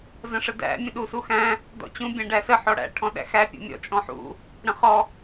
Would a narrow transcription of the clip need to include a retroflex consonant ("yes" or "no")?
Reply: yes